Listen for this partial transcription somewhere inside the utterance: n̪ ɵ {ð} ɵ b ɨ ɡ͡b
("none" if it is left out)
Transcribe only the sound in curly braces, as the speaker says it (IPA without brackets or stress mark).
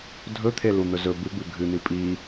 z